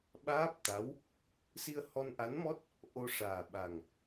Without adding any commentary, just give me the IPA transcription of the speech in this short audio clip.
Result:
ɓ aː˦˥ p̚ t̪ a˧˥ w | s i˧ ə̯ h ɔ˧ n ʔ a˧˥ n m ɔ˦˥ t̚ | ʔ o˧ ʂ aː˨˩ ɓ a˨˩ ŋ

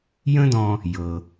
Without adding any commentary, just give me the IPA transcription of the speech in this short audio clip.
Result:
j ə̃˥ d ɔ̃˧ | j ɤ˩

